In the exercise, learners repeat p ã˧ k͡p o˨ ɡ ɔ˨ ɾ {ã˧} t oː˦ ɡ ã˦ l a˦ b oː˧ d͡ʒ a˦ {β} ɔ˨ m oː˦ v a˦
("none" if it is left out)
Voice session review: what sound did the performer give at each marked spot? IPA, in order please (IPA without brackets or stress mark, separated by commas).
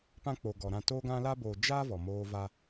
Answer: ã˧, v